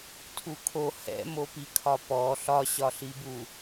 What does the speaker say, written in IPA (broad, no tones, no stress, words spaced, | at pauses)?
tʰukʰo hɛ̰mopikʰɒ pɔ ɬɒɕɒɬibu